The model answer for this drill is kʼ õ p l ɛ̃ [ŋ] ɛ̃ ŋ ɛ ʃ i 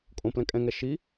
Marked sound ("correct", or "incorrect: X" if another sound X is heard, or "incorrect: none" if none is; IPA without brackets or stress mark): incorrect: kʼ